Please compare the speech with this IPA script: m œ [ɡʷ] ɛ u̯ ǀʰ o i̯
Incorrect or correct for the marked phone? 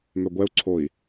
correct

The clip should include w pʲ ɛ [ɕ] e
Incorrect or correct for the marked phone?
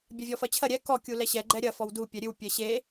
correct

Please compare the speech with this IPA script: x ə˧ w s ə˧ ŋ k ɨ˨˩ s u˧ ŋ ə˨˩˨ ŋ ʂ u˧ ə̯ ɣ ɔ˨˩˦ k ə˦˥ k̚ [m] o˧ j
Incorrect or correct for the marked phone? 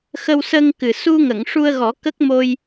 correct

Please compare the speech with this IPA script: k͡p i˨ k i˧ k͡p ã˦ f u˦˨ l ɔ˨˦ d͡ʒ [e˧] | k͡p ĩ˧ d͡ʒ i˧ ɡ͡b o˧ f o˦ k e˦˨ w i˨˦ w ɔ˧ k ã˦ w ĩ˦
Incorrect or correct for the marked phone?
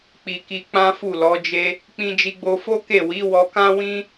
incorrect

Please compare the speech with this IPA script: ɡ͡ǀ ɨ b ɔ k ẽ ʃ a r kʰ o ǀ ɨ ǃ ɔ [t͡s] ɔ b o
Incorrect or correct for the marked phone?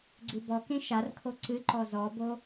incorrect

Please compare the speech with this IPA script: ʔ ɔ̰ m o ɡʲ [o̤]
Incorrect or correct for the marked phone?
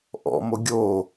incorrect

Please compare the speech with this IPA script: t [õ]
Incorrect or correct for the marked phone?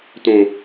correct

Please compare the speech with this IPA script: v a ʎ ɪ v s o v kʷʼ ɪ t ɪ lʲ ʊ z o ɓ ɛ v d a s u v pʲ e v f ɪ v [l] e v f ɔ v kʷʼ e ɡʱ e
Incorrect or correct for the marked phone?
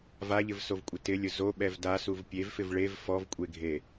incorrect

